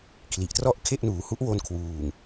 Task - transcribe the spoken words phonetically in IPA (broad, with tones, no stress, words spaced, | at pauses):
kʰli˨˩ʔ trɔ˥˩ʔkʰe˥˩ʔnuː˩˦ hu˦˥ʔwo˧nkʰwuː˨˩ŋ